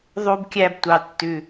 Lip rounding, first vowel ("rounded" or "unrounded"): rounded